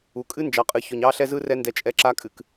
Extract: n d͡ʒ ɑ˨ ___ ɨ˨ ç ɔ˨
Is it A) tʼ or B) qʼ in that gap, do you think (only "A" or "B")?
B